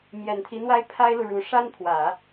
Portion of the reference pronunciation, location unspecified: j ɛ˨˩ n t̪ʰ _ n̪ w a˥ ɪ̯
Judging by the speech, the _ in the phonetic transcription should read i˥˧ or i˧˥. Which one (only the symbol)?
i˧˥